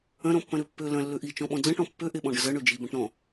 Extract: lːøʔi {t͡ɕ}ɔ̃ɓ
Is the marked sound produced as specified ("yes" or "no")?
no